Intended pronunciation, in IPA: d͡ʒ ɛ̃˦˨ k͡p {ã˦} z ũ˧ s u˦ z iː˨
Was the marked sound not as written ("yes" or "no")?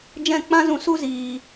no